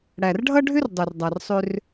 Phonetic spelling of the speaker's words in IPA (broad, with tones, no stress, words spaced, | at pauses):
ɽæ˨rɖʱʌ˦ɖʱʏ˦r dˤe˨rdˤa˨rsˤʏ˧r